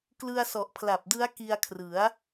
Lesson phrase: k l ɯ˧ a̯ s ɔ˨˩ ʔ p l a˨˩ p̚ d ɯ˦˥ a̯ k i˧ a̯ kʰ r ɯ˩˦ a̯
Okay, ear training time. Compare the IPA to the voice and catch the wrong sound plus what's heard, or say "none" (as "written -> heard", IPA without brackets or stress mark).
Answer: p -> pʰ